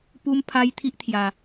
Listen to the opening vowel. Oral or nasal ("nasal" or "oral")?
oral